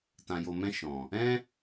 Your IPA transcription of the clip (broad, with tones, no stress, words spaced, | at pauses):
tã˨jo˨mɛ̃˧ ʃɔ̃˨ | ɛ̃˦